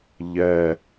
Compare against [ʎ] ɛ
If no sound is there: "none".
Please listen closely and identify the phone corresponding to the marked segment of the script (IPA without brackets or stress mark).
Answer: ʎ